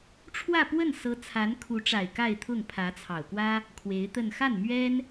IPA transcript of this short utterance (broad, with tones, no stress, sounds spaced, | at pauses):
ʈ͡ʂʰ w ä˥˧ p w ə˥˩ n s ɤ˧˥ t͡sʰ a˧˥ n kʰ u˧˥ ʈ͡ʂ a˨˩ ɪ̯ k a˥˧ ɪ̯ t̪ʰ ʊ˥˩ ŋ pʰ ä˧˥ t͡sʰ ɑ˨˩ ʊ̯ k w ä˥ | kʰ w e˧˥ ɪ̯ t̪ ə˥˧ n x a˥˩ n m ɥ ɛ˥ n